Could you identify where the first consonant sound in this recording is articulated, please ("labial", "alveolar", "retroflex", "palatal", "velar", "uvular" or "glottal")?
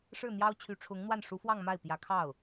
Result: retroflex